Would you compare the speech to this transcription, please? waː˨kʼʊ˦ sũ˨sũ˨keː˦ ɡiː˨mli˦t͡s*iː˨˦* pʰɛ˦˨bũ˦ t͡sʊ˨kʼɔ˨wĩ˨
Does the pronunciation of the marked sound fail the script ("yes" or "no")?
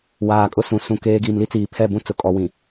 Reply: yes